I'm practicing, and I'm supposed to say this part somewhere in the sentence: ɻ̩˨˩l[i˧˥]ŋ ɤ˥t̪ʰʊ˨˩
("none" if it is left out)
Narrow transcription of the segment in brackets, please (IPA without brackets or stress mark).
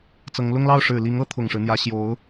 i˧˥